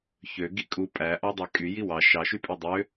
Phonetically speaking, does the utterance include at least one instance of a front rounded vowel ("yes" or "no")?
yes